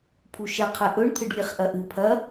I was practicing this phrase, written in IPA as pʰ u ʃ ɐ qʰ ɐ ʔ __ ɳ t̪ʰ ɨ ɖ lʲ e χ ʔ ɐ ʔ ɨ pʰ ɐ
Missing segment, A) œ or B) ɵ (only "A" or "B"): B